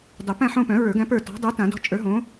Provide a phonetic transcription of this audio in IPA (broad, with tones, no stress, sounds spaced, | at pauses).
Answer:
dˤ ə˨˩˦ p æ̃˦˨ ħ õ˦˨ p œ̃˨˩˦ ɹ ə˞˨˩˦ ɡ æ̃˨˥ p ə˞˦˨ t ɔ̤˨˥ dˤ œ˨˥ t ã˨˩˦ d ɔ̤˨˥ t͡ʃʼ ə˞˨˥ ɦ õ˨˥